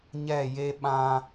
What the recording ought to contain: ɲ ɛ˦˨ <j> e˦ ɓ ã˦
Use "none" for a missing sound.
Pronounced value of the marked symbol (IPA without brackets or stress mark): j